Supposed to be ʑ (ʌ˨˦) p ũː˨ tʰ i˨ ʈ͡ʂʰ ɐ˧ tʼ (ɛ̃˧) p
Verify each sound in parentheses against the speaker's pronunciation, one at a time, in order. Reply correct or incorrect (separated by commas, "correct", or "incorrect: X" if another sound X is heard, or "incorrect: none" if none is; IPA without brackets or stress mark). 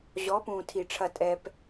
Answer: incorrect: ɔ˨˦, incorrect: ɛ˧